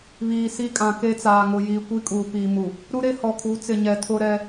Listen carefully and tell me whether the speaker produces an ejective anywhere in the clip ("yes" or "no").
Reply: yes